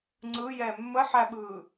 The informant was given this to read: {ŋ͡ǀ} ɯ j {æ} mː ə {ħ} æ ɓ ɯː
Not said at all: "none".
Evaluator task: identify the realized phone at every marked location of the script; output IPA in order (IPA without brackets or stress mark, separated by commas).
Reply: ŋ͡ǀ, ɛ, ħ